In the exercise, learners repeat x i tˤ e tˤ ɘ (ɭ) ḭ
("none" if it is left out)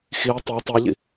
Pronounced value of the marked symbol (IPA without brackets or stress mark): ʎ